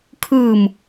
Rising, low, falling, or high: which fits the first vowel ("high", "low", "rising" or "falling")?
low